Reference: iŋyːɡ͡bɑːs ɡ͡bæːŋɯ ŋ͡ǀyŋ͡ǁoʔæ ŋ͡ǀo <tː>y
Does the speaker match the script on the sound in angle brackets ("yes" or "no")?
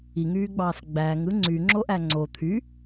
no